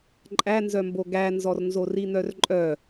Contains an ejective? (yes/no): yes